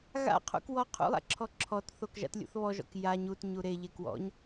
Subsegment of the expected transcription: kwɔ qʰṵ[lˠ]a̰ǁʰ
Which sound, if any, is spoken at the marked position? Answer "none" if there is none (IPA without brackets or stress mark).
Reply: lˠ